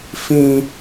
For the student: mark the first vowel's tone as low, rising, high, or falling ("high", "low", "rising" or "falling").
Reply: high